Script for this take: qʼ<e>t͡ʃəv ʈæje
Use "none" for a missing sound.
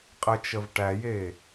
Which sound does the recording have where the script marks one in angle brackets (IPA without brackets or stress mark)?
ɘ